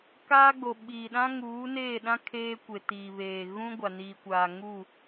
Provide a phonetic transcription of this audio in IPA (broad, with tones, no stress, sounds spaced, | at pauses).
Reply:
k aː˦ ɡ͡b o˨ ɓ iː˨ ɗ ã˦ ŋ uː˨˦ n eː˦˨ ɗ ã˦ kʰ eː˦ kʷ e˨ t iː˨ β eː˨ ɣ ũ˦ ɡʷ a˨ n iː˨ kʷ aː˨ ŋ u˦˨